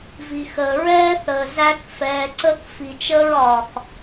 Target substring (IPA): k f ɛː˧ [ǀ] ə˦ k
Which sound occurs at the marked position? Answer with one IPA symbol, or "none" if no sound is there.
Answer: ǀ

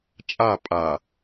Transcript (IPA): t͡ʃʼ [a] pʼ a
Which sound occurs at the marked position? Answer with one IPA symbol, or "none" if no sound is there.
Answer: a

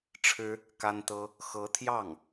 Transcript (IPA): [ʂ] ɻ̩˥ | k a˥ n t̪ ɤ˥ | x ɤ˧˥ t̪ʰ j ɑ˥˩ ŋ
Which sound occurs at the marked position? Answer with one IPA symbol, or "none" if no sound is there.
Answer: ʈ͡ʂʰ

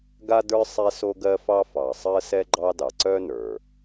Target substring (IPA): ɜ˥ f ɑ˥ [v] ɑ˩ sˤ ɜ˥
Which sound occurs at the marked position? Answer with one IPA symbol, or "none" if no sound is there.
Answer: f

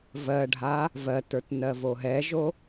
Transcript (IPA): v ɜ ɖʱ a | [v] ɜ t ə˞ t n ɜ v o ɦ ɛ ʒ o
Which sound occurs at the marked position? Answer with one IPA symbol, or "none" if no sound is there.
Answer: v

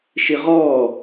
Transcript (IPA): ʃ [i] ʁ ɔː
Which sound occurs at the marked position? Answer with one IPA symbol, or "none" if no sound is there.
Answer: i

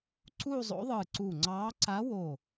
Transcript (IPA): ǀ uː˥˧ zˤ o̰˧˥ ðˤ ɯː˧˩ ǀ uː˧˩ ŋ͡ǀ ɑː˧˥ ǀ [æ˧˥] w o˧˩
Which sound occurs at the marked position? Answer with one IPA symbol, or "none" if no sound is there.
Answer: a˧˥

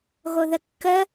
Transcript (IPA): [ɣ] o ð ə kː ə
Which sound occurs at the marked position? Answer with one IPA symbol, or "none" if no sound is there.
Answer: ɣ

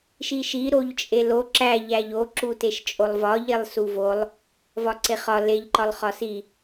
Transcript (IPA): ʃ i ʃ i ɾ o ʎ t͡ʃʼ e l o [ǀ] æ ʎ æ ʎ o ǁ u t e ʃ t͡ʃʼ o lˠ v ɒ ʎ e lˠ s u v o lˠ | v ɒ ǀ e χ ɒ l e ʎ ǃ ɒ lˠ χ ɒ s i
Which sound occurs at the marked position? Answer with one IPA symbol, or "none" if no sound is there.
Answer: ǁ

